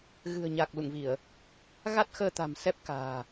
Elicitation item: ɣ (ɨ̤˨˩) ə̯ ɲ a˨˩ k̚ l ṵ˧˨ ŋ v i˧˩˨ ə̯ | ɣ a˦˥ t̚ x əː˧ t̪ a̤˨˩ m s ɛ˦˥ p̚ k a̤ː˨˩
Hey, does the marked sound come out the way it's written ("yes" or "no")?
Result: yes